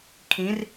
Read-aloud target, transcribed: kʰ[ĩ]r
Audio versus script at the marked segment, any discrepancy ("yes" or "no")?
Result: no